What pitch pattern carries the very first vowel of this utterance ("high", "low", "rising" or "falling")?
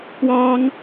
high